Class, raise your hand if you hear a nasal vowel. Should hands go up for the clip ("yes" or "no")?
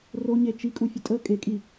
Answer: no